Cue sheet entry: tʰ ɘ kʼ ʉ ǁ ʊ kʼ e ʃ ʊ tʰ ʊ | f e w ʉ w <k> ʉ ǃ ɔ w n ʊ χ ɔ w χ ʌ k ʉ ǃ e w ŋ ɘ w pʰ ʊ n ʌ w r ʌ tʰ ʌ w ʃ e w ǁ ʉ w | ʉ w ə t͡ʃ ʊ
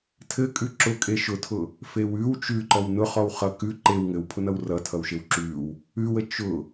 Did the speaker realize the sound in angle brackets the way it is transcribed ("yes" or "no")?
no